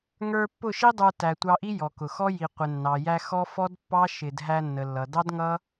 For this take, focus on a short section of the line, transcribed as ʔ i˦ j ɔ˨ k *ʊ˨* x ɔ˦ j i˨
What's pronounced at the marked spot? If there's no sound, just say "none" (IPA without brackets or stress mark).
ʊ˨